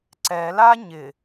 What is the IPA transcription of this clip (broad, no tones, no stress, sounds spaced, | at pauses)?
ǀ ɛ l a ɲ ɪ